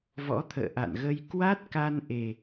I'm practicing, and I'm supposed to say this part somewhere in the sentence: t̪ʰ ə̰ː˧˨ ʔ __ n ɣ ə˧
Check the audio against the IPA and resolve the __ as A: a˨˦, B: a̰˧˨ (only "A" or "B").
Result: B